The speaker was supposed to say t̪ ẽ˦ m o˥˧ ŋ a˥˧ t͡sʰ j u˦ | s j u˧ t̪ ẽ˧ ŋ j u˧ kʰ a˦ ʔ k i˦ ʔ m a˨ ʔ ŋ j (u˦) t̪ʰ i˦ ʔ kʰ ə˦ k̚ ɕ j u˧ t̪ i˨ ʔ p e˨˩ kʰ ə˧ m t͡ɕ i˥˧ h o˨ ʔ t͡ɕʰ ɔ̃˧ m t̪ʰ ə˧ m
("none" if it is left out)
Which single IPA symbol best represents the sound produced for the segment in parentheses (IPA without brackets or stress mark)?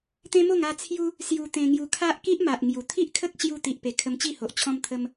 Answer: u˨˩